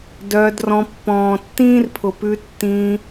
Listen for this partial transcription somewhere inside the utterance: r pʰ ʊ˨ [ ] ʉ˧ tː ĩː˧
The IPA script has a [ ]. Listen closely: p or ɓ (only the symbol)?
p